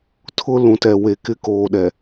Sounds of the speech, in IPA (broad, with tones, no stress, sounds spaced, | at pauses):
tʰ ʊ˦ l ũ˨ t ɛ˨ w e˨ k ɪ˦ k oː˨ ɗ ɛ˨